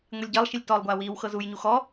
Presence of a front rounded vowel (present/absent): absent